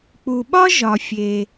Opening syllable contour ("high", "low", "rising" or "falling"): low